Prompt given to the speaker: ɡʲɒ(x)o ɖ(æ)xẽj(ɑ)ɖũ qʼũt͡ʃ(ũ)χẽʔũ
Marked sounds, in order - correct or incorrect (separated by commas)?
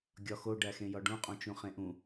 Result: correct, correct, incorrect, correct